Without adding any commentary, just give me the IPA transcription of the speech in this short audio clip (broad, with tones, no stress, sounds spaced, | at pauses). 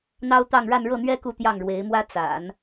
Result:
n̪ ɑ˥ ʊ̯ t̪ ɑ˥˧ ŋ ɻ a˥˧ n ɻ ɤ˥˩ n̪ ɥ ɛ˥ k u˥˧ t̪ j ɑ˥˩ ŋ ɻ w e˧˥ ɪ̯ m w ä˥ t͡s a̰˨˩˦ n